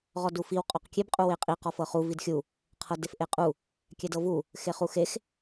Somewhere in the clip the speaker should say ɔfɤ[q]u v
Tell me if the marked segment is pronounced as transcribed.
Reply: no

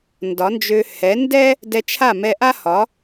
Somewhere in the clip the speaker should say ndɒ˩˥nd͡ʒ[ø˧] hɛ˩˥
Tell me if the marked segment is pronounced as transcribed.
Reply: yes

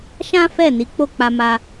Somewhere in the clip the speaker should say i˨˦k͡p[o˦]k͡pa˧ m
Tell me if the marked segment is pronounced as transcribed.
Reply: no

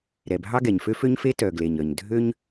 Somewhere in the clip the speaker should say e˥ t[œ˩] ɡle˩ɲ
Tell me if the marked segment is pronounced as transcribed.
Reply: yes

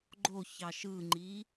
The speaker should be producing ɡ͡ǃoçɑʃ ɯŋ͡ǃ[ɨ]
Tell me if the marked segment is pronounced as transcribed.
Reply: no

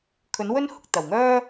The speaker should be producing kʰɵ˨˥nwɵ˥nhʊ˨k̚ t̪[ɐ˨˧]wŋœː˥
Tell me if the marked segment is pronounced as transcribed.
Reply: no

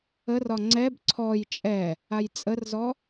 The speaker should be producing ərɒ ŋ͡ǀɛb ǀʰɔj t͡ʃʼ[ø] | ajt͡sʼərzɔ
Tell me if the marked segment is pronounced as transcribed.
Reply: no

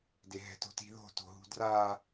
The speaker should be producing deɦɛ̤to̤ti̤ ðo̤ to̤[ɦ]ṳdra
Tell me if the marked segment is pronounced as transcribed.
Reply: yes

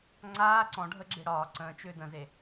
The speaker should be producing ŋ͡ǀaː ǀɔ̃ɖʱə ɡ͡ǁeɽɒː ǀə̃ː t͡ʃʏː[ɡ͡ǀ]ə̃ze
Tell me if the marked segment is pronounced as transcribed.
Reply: no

